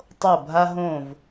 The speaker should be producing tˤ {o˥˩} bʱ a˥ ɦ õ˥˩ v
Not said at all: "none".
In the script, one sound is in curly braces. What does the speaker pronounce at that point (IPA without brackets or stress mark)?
o˥˩